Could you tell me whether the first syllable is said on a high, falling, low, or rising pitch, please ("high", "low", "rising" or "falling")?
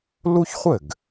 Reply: high